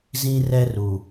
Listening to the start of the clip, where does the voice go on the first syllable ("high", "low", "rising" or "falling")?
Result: high